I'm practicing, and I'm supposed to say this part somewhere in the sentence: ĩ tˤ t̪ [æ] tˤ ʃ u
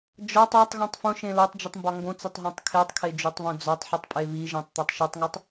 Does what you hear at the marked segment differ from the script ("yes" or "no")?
no